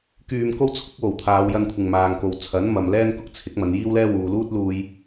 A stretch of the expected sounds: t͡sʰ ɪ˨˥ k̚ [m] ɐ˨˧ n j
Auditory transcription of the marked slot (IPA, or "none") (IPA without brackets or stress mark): m